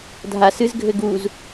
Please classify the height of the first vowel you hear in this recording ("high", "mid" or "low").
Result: low